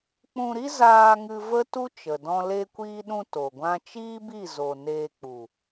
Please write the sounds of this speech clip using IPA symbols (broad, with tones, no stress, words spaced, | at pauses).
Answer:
k͡pũ˧ɾi˦ zaː˧ŋɨ˧ və˦tu˦ t͡ʃə˨dɔ̃˦ le˧kʷiː˧ɗũ˧ to˨ɡʷã˦ t͡ʃiː˦bi˦˨zo˨ neː˧k͡pu˨